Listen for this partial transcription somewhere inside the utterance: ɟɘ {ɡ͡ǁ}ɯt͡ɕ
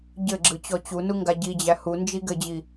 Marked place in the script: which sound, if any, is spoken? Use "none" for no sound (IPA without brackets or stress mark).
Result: ɡ͡ǁ